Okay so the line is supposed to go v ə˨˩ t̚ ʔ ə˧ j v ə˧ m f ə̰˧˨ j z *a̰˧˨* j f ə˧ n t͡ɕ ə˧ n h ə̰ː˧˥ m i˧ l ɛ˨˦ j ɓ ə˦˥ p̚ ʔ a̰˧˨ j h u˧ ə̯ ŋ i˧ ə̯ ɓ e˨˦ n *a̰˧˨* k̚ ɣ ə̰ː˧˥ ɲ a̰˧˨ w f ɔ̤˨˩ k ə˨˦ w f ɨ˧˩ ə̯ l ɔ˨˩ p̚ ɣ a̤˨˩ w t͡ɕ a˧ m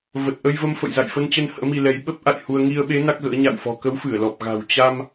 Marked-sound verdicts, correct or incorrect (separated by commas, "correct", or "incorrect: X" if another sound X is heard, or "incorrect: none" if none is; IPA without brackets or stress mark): correct, incorrect: a˦˥